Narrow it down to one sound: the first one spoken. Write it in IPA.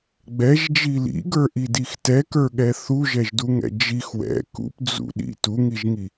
ɡ͡b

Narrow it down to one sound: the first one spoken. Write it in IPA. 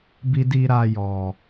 b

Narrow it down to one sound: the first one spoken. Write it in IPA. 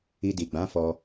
i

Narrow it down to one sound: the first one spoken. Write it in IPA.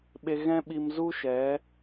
ɓ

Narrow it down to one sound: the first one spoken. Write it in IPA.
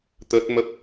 t̪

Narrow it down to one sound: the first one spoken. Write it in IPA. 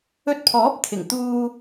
ɵ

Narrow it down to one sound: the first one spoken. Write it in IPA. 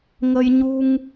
ŋ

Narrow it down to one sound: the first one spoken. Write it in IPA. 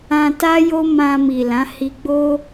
ã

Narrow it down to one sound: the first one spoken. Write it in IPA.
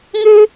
ŋ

